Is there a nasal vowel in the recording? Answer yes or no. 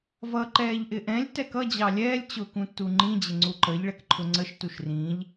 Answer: yes